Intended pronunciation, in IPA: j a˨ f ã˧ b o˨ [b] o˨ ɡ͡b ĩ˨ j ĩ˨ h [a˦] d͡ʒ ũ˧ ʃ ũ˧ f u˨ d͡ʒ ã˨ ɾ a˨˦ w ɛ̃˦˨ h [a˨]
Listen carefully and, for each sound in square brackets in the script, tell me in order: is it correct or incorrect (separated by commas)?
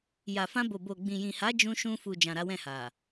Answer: correct, incorrect, correct